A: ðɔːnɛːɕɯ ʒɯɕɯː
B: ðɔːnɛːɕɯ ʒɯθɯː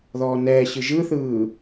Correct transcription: B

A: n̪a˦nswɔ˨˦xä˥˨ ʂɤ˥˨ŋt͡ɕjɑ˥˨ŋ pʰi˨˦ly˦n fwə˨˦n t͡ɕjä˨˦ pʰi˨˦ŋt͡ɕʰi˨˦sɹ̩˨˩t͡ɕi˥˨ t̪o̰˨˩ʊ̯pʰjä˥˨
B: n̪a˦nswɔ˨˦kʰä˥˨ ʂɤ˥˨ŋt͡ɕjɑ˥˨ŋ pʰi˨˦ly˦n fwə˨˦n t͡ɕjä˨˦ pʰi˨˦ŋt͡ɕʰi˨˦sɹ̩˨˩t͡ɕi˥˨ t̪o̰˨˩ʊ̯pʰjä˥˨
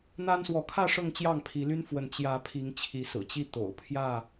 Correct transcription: B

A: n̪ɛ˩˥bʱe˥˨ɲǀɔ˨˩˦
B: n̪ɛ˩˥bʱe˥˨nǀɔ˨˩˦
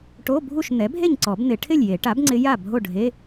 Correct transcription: A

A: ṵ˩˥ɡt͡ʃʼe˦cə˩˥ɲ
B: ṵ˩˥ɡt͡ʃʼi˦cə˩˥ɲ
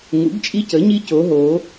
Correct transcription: B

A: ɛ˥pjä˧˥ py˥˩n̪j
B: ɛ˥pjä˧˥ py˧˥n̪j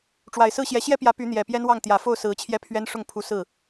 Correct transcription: B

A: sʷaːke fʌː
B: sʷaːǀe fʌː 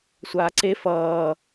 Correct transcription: B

